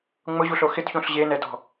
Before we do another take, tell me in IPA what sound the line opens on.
ŋ͡m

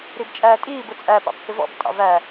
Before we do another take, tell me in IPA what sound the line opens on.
ɾ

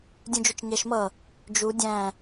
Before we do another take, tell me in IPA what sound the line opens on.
dʲ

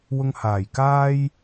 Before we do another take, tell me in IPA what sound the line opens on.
w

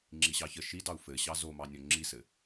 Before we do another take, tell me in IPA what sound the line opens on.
ŋ͡ǁ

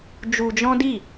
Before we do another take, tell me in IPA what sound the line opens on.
d͡ʒ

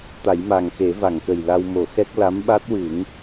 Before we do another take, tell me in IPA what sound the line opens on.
t̪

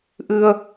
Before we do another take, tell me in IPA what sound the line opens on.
ʔ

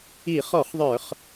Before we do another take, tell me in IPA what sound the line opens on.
i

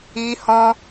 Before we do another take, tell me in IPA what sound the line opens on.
i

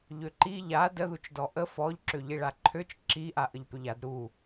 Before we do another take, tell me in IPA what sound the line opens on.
ʎ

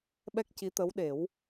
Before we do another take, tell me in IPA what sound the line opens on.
ɓ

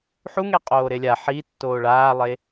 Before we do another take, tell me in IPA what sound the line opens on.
ħ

